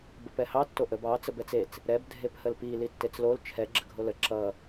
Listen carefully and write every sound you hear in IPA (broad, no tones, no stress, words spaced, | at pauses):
bəpɛhɑ tːoʔəb ɑ t͡səbɛt͡set͡s | ɾɛb dʱephəlpi litːet͡slol t͡ʃʰɛ ɡ͡ǁəɡʱolə ǁʌ